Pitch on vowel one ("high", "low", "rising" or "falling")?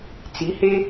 rising